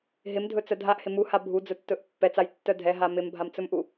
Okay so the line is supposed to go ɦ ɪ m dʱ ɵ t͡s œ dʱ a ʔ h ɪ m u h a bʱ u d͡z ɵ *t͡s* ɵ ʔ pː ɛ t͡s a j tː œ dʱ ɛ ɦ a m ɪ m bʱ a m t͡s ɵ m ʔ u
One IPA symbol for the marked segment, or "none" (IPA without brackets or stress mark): tː